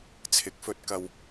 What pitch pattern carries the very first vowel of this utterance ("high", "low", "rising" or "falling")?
rising